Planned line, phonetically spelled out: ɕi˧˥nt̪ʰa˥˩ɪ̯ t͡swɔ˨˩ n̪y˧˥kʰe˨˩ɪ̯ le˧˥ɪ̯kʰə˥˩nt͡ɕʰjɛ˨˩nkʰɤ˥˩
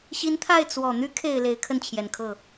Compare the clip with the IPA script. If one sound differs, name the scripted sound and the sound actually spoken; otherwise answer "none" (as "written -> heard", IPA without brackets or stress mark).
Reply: none